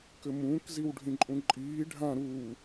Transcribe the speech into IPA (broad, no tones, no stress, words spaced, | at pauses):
kɘmũːkziw ɖʱĩǃʼũǃʼiː ɖʱã ɾu